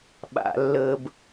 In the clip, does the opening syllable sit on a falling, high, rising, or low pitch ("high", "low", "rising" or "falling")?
low